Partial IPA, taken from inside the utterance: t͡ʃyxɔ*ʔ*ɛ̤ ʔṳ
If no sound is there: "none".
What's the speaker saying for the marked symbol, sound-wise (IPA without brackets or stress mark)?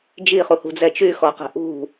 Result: q